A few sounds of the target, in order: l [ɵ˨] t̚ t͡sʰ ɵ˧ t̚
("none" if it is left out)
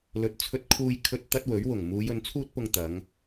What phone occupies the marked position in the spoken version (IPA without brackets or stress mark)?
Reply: ɵ˨